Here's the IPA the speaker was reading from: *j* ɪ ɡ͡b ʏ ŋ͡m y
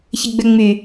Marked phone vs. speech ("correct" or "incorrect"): incorrect